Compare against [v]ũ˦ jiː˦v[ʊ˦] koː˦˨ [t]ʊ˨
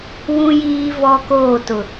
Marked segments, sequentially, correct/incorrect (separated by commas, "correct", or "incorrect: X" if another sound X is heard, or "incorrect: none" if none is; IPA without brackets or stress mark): incorrect: w, incorrect: ɔ˦, correct